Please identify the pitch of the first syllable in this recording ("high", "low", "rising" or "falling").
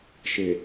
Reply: low